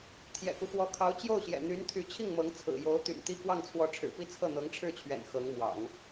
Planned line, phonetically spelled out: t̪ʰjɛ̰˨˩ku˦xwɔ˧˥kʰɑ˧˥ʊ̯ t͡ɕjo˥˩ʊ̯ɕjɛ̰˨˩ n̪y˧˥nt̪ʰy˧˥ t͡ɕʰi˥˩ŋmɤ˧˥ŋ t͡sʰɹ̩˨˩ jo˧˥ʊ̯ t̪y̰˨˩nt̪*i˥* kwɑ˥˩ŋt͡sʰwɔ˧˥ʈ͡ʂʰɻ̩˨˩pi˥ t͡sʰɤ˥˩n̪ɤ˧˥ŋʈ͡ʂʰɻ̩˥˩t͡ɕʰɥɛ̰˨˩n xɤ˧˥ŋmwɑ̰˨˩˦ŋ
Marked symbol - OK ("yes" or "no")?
no